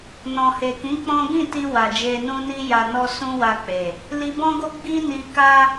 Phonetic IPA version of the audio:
n ɔ̃˨ h e˨ k ĩ˨˦ k͡p ɔ̃˦ ɡ ĩ˦˨ t i˧ w a˨ d͡ʒ e˧ n ũ˦ n i˦ j a˧ n ɔ˦ s ũ˦ w a˧ k͡p e˨ | l i˧ b ɔ̃˦ ɡ o˦ ɡ͡b i˦ n i˧ k a˦

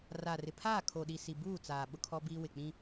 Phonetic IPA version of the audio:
r a˨ r ɪ˨ pʰ aː˦˨ kʰ o˨ ɗ i˨ s i˨ b uː˦˨ t͡s aː˨ ɓ ʊ˦ kʰ ɔ˦ b iː˦ w ɪ˨ k͡p ĩ˦

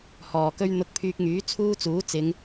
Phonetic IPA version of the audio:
h ɔː˨ k ɵ˥ ɥ n̪ ʊ˧ k̚ pʰ yː˧ k̚ ŋ yː˨˥ t͡sʰ uː˥ t͡s uː˨˥ t͡s ɪ˨˧ ŋ

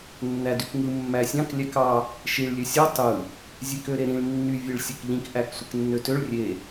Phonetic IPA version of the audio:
nː æ d y k ŋ ɯ mː æ sʲ ɑ̃ k lʲ æ k ɑ | ʃ i ɭ lʲ ø sʲ o tˤ ɯ | zʲ e k ø ɾ e ɾ ĩ ɭ nː y vʲ e ɭ sʲ o k ʎ ĩ k ʔ æ k sʷ e k nː ø t ø ɭ rʲ e

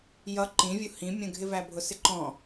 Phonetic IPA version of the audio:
j ʌ ǃ ĩ vʲ u h ĩ mʲ ə̃ ɡʱ ɪ v æ bʱ ʊ s ɪ ǃ ɔ̃

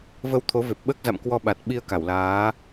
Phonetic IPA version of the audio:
v ə˧ w t̪ʰ o˨˦ v e˨˩ p̚ ɓ əː˦˥ k̚ z a̰˧˨ m k w ɔ˧ ɓ a˨˩ t̚ ɓ i˧ ə̯ k a˧˩ w l aː˨˦

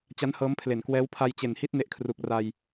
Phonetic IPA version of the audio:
t͡ɕ a˦˥ n h ɤː˦˥ m pʰ l e˨˩ n k w ɛː˦˥ w pʰ a˧ j t͡ɕ e˨˩ n h i˦˥ t̚ n e˦˥ ʔ kʰ r u˨˩ k̚ r a˧ j

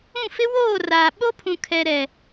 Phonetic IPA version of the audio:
ũ˦˨ f ɪ˦ w oː˦˨ r aː˨ ɓ o˦ pʰ ũ˨ kʰ ɛ˨ ɾ ɛ˨

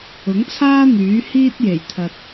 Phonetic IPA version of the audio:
ʊ˨˥ ŋ t͡sʰ aː˥ n̪ yː˨˥ h iː˥ t̚ j e˨˩ j t̪ʰ ɐ˨ t̚

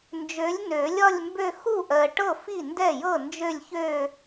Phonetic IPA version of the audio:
n d͡ʒ ø˨˥ lʲ n ø˨˩˦ lʲ ɒ˥˧ lʲ m b ø˥˧ x u˥˩ ʔ ɜ˨ ʈ ɤ˥˩ f i˥˩ n d ɛ˥˩ j ɤ˥˩ n d͡ʒ ø˥˧ lʲ ç ø˥˧

